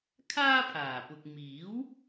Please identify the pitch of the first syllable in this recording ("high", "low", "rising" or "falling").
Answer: high